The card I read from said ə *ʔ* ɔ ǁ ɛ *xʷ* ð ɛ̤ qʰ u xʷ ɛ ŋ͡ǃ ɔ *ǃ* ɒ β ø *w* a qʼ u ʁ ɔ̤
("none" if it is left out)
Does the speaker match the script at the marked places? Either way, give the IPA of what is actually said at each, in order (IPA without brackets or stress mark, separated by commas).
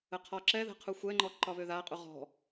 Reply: qʰ, none, ǃ, ð